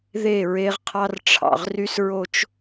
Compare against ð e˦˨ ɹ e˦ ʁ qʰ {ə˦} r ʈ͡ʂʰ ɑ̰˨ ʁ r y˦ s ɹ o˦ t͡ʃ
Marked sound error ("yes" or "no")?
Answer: yes